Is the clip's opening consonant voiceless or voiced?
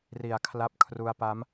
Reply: voiced